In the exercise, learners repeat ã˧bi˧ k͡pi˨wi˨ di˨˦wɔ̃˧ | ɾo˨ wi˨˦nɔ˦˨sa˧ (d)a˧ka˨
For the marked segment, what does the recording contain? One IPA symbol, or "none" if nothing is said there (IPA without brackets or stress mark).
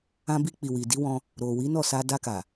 d